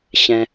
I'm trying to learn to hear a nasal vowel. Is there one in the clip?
yes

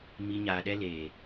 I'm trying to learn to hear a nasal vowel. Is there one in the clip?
no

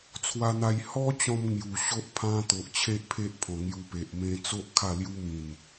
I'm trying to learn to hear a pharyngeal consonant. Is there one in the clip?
no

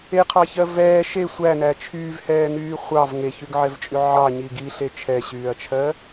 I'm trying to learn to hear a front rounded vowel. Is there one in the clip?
yes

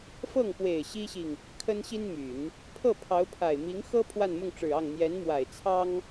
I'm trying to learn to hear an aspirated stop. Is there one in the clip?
yes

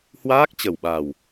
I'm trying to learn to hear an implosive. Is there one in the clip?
yes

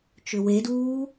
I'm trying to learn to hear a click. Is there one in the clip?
no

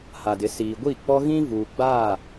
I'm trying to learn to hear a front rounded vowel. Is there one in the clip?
no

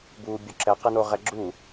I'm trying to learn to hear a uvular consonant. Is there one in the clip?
yes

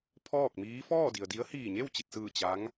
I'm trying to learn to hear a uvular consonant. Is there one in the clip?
no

